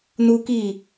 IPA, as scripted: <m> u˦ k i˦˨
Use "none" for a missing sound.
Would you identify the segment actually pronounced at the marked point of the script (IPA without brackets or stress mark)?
n